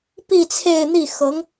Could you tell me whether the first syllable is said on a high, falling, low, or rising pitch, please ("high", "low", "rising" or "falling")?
falling